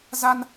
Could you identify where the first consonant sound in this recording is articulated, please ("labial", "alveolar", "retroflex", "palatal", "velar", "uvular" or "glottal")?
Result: alveolar